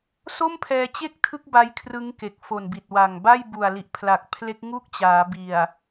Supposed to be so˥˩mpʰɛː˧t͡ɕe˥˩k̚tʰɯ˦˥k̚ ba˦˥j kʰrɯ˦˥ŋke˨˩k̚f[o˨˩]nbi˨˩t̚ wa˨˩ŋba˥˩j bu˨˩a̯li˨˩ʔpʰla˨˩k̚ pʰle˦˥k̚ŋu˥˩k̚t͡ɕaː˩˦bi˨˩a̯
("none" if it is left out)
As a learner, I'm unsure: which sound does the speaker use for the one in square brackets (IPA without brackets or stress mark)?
o˨˩